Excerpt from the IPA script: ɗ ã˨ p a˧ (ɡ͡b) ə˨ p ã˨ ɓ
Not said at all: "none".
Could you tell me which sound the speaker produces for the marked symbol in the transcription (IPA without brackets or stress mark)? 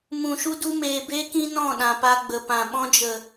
ɡ͡b